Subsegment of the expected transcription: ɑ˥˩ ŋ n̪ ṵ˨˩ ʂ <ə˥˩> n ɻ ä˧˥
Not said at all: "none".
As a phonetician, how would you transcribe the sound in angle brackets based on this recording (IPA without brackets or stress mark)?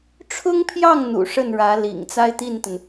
ə˥˩